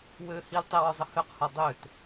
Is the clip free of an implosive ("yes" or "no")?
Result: yes